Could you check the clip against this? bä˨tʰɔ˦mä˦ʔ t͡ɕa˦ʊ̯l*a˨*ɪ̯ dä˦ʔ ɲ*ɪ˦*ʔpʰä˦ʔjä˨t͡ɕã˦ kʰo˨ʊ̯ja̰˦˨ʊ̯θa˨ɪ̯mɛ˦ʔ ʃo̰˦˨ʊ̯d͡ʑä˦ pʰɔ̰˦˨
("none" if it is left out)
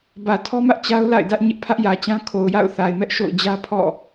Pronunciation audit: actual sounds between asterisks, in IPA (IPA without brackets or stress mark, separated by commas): a̰˦˨, ɪ˦